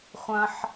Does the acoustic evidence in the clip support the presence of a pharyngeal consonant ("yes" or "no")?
yes